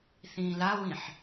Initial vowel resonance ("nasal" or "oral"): nasal